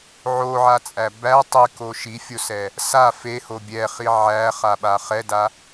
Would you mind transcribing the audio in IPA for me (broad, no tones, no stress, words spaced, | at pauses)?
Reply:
ʕoʕat͡sʼæ bæ tˤiko ʃifʲosɛ | sa feho bʲɛχi ʕæχaɓa χɛda